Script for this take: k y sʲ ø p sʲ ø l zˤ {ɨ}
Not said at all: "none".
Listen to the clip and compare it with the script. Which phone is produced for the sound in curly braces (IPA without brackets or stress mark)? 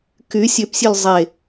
e